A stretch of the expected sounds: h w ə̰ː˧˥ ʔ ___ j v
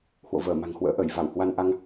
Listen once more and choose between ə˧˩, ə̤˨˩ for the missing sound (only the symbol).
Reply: ə˧˩